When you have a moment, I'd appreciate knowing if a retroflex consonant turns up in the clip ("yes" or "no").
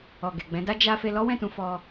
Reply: no